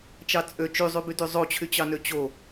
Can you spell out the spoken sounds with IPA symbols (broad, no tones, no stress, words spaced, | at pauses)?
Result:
t͡ʃɑt͡sʼø t͡ʃyzˤybydy zˤot͡ɕʰyt͡ɕɑnø t͡ɕo